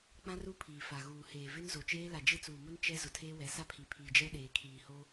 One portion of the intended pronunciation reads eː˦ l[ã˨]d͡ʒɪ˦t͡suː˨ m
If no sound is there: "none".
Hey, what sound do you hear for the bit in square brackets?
a˨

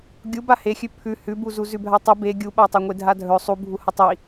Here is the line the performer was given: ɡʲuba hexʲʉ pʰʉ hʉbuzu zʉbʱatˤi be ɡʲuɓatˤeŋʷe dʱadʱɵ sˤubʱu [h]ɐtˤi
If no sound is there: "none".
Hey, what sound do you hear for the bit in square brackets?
h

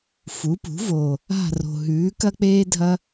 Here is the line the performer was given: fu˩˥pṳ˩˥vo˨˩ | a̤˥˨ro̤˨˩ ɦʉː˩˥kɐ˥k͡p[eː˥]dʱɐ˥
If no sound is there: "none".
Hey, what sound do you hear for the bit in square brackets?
eː˥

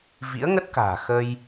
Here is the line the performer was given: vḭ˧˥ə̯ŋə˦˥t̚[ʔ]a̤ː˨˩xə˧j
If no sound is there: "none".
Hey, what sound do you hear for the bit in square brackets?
k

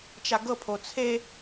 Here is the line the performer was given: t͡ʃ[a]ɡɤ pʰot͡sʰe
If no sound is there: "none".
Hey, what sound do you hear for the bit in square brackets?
a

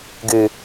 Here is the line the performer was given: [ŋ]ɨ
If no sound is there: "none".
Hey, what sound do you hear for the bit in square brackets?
ɡ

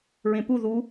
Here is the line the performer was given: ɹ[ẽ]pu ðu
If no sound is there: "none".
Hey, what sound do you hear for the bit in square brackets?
ẽ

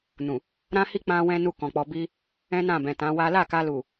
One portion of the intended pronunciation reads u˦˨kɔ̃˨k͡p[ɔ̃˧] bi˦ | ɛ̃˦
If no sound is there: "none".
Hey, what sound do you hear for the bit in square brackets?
ɔ˧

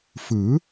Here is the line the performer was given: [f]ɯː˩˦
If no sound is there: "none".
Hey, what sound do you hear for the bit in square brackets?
f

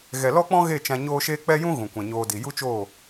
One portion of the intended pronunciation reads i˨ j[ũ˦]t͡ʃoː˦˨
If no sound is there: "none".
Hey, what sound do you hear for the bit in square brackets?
u˦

